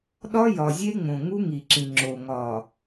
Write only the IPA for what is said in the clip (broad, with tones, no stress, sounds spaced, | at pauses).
ɗ ɒ˦ j ɒ˨ zʲ e˦ ŋ͡m õ˨ ŋ u˦ ŋ i˨ ǁ ĩ˨ ŋ͡ǁ o˨ ŋ ɒ˨